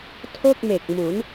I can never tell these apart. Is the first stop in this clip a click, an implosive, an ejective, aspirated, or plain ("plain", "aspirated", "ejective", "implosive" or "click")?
aspirated